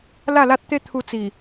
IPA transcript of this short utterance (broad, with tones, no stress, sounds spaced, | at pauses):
l a˥˧ l a˦ t̚ t̪ e˦ t̪ʰ u˧ t͡s i˨˩